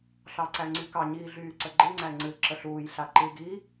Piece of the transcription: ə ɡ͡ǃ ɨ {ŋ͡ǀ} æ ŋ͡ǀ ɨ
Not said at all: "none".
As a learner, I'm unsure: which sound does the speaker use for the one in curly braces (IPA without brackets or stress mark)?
ŋ͡ǀ